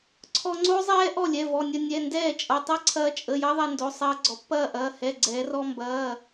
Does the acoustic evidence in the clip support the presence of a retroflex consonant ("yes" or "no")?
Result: no